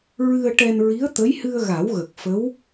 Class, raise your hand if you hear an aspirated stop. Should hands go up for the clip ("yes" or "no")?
no